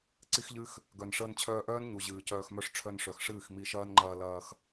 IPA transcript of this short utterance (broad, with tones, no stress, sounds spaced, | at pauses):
ǀ i˦ x ʎ ɨ˦ x | ɡ œ˨ n ʂ əː˧ n t͡ɕʰ œː˧ ʔ œː˦ n ɲ u˨ ʑ ɨː˨ c œː˧ x m œ˦ ʂ ʈ͡ʂʰ œ˧ n ʂ œ˨ x ʂ ɨː˦˨ x m i˧ ʃ ɐː˦ n ŋ͡ǃ ɐː˧ l ɐː˧ x